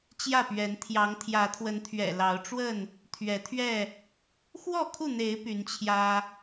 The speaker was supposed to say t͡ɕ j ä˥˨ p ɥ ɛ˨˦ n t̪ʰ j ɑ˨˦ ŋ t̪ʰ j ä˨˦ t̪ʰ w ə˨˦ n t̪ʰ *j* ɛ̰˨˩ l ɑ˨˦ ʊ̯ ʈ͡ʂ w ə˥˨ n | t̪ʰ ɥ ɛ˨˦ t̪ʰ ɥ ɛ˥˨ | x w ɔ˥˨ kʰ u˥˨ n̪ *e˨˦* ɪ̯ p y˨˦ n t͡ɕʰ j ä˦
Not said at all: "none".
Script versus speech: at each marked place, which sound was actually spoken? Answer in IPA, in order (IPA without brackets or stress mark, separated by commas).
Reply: ɥ, e˨˦